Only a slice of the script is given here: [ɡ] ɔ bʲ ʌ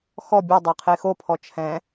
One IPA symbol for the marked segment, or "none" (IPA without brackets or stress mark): x